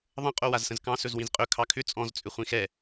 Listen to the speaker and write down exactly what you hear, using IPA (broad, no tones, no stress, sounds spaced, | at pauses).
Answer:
ðˤ ə̃ qʼ o w a z s ə̃ z k ɑ̃ s ɵ z w ĩ z qʼ ɵ kʰ ɑ kʰ ʏ t͡sʼ ɔ̃ z t͡sʼ ʏ χʷ ĩ x ɛ